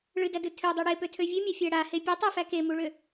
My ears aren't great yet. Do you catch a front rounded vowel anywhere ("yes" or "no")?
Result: yes